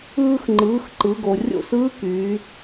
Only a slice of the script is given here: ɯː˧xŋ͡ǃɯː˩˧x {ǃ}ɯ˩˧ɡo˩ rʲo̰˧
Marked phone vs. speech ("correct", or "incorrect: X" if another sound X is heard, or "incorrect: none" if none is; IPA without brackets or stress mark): correct